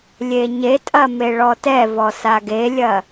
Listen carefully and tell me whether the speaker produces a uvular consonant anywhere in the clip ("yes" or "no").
no